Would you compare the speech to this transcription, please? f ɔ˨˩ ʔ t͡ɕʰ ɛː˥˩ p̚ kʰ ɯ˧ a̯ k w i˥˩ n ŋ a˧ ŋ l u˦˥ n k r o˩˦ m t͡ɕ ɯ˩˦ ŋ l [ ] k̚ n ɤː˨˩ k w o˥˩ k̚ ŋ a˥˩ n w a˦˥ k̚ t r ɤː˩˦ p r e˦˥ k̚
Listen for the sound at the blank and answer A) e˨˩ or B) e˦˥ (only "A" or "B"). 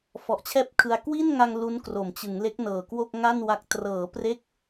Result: B